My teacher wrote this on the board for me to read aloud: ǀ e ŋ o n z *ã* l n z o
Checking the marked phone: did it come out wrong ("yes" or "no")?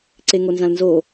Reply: no